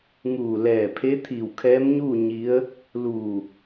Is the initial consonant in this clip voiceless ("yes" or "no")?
no